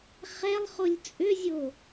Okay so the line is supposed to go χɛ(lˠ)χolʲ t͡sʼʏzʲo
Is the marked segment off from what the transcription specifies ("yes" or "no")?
no